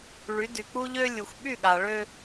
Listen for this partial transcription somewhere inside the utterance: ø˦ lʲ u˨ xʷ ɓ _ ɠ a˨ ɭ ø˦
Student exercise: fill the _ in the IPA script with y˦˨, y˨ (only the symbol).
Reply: y˦˨